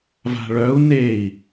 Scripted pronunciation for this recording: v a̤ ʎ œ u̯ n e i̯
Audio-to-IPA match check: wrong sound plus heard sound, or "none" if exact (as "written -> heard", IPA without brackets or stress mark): ʎ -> ɭ